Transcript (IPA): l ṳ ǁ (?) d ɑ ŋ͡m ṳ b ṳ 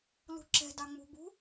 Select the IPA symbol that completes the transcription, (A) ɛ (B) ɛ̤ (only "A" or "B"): B